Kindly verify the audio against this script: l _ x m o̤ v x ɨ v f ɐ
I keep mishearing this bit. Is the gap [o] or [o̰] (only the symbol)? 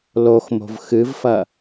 o